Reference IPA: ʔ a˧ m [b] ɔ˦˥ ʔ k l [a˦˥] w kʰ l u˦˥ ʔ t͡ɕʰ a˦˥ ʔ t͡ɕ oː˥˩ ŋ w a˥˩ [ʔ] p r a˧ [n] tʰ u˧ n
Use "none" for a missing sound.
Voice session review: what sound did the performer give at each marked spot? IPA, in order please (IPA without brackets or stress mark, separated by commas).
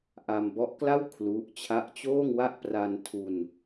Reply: b, a˥˩, ʔ, n